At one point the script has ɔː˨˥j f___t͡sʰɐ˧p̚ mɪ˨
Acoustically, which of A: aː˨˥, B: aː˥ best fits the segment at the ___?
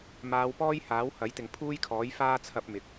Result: B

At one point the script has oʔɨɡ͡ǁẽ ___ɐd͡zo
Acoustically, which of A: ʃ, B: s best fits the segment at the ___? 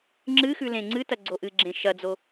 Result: A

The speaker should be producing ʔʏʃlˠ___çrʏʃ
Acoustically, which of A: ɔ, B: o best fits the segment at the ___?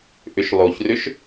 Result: B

